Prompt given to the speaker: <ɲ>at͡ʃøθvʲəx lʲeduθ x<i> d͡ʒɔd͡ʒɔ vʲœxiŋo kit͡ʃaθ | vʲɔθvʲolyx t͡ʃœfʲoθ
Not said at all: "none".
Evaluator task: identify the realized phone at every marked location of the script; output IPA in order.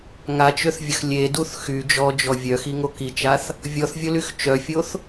ŋ, y

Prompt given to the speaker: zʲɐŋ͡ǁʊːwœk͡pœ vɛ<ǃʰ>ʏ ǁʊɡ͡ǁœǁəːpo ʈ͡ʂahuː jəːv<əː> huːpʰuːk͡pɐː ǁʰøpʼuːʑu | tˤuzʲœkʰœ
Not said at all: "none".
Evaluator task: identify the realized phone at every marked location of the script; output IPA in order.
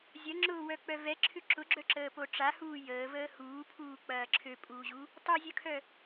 ǁʰ, əː

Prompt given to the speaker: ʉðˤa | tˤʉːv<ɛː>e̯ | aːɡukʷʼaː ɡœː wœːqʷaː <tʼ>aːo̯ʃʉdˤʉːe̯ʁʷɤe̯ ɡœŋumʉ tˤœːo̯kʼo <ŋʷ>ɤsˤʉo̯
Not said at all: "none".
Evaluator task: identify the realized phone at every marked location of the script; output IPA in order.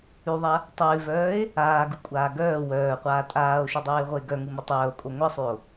œː, tʼ, ŋʷ

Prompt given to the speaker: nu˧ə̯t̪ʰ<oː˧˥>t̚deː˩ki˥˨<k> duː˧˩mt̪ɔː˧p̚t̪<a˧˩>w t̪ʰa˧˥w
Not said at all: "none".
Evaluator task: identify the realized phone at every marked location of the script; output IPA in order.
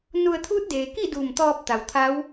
uː˧˥, none, a˩

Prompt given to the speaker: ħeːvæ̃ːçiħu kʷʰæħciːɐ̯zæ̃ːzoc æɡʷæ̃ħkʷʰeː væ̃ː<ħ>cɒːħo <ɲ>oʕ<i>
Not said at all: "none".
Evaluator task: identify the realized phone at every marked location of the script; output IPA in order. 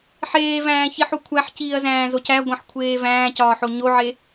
none, ɲ, e

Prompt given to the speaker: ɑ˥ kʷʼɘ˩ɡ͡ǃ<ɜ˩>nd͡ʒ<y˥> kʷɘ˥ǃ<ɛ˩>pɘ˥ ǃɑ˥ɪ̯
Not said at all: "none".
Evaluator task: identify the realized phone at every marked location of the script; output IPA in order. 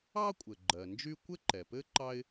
ɜ˩, y˥, ɛ˩

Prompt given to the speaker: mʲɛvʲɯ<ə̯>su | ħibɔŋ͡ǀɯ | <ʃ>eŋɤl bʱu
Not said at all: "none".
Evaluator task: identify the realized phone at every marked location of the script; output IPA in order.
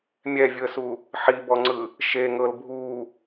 ə̯, ʃ

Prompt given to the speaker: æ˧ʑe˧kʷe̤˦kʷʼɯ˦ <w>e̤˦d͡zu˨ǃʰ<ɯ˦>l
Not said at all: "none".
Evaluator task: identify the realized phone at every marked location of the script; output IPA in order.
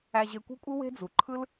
w, ɯ˦

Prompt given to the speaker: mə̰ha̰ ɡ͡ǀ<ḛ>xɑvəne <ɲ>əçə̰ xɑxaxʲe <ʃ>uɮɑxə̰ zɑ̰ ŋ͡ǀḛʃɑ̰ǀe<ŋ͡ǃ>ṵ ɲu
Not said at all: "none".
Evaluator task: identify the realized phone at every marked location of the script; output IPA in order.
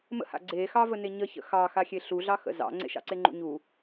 e, ɲ, ɬ, ŋ͡ǃ

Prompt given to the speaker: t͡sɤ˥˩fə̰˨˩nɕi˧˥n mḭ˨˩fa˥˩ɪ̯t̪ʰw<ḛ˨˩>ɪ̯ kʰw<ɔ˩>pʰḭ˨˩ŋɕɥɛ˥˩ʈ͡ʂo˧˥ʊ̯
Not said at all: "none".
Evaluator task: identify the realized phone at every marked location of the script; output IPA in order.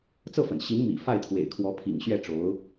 ḛ˨˩, ɔ˧˥

